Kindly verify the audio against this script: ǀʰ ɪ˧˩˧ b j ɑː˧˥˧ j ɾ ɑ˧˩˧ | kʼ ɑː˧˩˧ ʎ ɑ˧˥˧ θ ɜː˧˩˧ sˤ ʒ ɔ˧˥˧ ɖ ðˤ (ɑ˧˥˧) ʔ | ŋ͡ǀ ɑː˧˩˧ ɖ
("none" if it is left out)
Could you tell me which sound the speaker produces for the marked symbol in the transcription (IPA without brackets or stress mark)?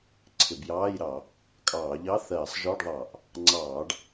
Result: ɑ˧˩˧